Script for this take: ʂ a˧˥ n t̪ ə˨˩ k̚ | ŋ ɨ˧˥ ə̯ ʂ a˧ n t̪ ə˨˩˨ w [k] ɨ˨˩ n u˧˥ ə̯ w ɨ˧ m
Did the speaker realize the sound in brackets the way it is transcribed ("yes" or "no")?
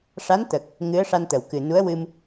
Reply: yes